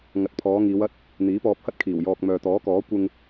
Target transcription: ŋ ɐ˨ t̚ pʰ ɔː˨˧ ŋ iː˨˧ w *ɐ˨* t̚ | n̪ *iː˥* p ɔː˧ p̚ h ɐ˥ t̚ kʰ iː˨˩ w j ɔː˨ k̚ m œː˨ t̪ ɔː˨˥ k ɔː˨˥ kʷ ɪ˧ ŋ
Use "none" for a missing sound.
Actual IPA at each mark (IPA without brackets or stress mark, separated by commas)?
ɐ˥, iː˨˥